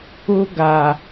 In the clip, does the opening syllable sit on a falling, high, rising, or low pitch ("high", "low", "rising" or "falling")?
high